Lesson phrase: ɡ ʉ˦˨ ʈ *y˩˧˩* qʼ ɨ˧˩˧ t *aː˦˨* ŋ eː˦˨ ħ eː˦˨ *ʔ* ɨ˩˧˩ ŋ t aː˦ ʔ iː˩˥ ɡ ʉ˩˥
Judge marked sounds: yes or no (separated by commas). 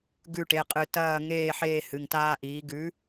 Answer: no, no, no